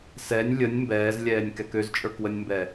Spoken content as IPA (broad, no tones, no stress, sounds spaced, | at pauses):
s ɛ nʲ lʲ ə nʲ m b ɛː z lʲ ɛː nʲ k ɛ k ø z t͡ʃʼ ə˞ k w ə nʲ m b ɛ